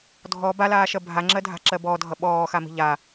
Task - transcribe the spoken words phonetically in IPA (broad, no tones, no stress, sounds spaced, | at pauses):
dʱ ɔ b a l aː ʃ ɜ bʱ a ŋ͡ǁ ɜ dʱ a̤ ǁ ɜ b ɔ dʱ ʌ ɓ ɔː x a m i̤ ʎ a